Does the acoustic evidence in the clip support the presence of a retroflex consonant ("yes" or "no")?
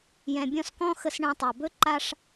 yes